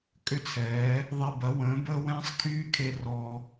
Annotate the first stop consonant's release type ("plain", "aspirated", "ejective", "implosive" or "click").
ejective